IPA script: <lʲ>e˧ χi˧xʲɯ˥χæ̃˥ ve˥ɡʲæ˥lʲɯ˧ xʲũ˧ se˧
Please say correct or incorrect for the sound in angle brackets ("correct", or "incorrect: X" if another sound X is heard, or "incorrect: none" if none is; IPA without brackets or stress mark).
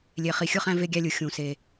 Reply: correct